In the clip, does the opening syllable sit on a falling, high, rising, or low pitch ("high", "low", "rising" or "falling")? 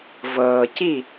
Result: low